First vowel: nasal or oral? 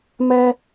oral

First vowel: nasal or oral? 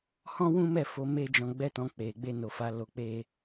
nasal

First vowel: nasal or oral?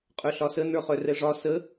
oral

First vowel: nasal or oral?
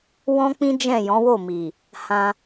nasal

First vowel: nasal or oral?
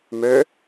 oral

